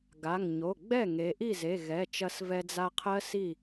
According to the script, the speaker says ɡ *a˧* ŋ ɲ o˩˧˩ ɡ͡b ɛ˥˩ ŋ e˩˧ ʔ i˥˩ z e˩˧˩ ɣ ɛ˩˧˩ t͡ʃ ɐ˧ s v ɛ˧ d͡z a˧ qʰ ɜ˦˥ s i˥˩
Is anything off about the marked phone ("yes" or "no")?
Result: yes